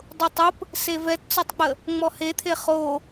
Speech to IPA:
dˤ ʊ tˤ ʊ p | s e v ɛ t t͡s ɔ tˤ k͡p ə | ŋ͡m ɔ h e t̪ʰ e χ o

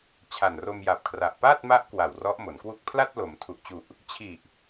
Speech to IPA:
t͡ɕʰ a˨˩ n r o˧ m j a˨˩ p̚ kʰ r a˨˩ ʔ p a˥˩ t̚ m a˦˥ ʔ k w a˨˩ w r ɔ˦˥ ʔ m o˩˦ n k w u˥˩ k̚ pʰ l a˥˩ t̚ l o˩˦ m tʰ u˨˩ ʔ t͡ɕ u˨˩ ʔ | t͡ɕʰ i˨˩ ʔ

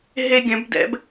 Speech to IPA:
ɦ e˧ ɡʲ œ̃˩˧ b d ɛ̰˩˧ b

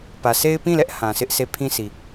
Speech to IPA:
p ä˨ s e˦ ɪ̯ p ĩ˦˨ l ɛ˦ ʔ h ã˨ s ɪ˦ ʔ s e˦˨ pʰ ĩ˦ sʰ i˨

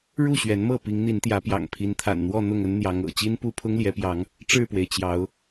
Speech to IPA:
ɻ u˥˨ ɕ ɥ ɛ˨˦ n m ɤ˥˨ p i˨˦ ŋ n̪ i˨˦ n t̪ j ä˨˦ p j ɑ̰˨˩ ŋ pʰ i˨˦ n t̪ʰ a̰˨˩ n n̪ w ɔ˥˨ n̪ ʊ˥˨ ŋ ə˦ n n̪ j ɑ˨˦ ŋ ɤ̰˨˩ t͡ɕ i˦ n p u˦ pʰ ʊ˦ ŋ l j ɛ˨˦ p j ɑ˨˦ ŋ | ʈ͡ʂ ɻ̩˥˨ p w e˩ ɪ̯ t͡ɕ j ɑ˨˦ ʊ̯

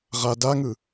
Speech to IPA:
ʁ a d a ŋ ɯ

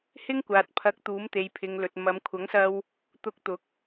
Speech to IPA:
h ɪ˥ ŋ kʷ aː˨ t̚ pʰ ɐ˨˥ k̚ t̪ uː˨˥ m t̪ e˨ j pʰ ɪ˨ ŋ l ɵ˨ t̚ m ɐ˨˧ m kʷʰ ɐ˨˥ ŋ s ɐ˧ w | t̪ ʊ˧ k̚ t̪ ʊ˨˥ k̚

